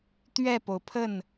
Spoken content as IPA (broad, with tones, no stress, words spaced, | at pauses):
t̪ɥɛ˥˩po˩ʊ̯pʰə˥˩n